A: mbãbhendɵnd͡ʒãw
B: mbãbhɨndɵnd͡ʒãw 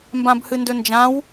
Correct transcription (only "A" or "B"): B